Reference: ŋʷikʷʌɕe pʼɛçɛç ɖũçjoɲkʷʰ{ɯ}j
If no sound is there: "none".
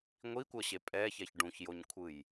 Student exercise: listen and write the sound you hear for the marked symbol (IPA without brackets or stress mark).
ɯ